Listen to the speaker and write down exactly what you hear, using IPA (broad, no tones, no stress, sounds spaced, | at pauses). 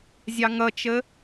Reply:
zʲ ɑ ŋ ʌ t͡ʃ ə